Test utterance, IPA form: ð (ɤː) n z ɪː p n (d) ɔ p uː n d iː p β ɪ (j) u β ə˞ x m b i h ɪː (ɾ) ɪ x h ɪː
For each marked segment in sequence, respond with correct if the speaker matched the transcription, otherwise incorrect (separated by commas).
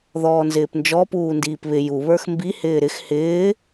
incorrect, incorrect, correct, correct